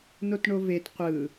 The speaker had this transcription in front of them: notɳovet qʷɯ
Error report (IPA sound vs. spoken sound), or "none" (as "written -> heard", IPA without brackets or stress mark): none